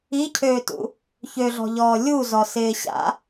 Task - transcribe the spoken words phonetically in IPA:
i cʰ øː t ṵ | ç ø ɮ ɔ̤ ʎ ɔː lʲ u z ɔ s ɪː ɕ a̰

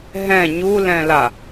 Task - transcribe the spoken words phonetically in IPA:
ɦ ɛ̃ ɲ u l ɛ̃ l a

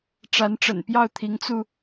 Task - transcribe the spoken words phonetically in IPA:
ʈ͡ʂ a˧˥ n ʈ͡ʂ ə̰˨˩ n p j ɑ˥˩ ʊ̯ t̪ʰ i˧˥ ŋ t͡s u˧

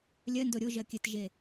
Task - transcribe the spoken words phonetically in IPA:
lʲ ɜ n d o ɾʲ o ʒ ɜ kʲ ɘ t ʒ e

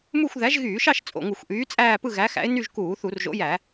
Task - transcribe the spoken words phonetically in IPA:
m u˥˧ xʷ ð æ˨˥ ʒ ɣ yː˧˩˧ ʃ ɑ˥˧ ʃ t͡sʼ o̰˨˩ ŋ u˧˩˧ xʷ ʔ yː˨˥ t͡sʼ æː˥˧ p ɯ˥˧ ɣ æ˨˥ x æ̰˨˥ ɪ̯ n y˥˧ ʒ k uː˧˩˧ θ u˧˩˧ r ʒ o̰˨˥ j æ˧˩˧

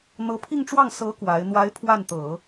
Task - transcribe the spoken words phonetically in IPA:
n̪ ɤ˧˥ pʰ i˥˧ ŋ ʈ͡ʂ w ɑ˥˩ ŋ s ɤ˧˥ k w a˧˥ ɪ̯ n̪ w a˧˥ ɪ̯ pʰ w a˥˩ n t̪ ɤ˨˩˦

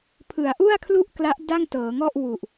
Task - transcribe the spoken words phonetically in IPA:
pʰ ɯ˩˦ a̯ ʔ u˥˩ a̯ kʰ l u˥˩ ʔ k l a˦˥ ʔ d a˥˩ ŋ t ɤː˩˦ ŋ ɔ˥˩ ʔ w u˨˩ ʔ

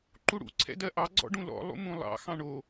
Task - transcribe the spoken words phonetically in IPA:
ǃ u ɽ ṵ ǀʰ ɛ̰ d ɜ ʔ ɑ ɡ͡ǀ ɔ̰ ɖ ũ l ɔ̰ lˠ ṵ m ũ lˠ ɑ̰ x ɑ̃ ɳ o

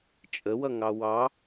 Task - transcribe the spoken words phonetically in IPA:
t͡ʃʼ ə w ʌ ŋ ɑ w ɑ

